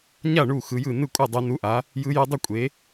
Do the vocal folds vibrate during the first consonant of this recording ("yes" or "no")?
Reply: yes